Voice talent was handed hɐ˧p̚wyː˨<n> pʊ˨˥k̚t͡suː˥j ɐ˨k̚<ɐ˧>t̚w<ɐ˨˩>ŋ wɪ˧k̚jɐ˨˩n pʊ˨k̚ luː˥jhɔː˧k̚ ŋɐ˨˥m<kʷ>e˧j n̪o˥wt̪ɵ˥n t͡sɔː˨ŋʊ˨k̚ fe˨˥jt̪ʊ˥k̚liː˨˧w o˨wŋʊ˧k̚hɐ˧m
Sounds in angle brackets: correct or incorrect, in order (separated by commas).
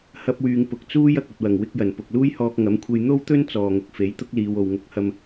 incorrect, incorrect, correct, incorrect